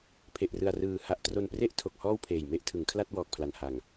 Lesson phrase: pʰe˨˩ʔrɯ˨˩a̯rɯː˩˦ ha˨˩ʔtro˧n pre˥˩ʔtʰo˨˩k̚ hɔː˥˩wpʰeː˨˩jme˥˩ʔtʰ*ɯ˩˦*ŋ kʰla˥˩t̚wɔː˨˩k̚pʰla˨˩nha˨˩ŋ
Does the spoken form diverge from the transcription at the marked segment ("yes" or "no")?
no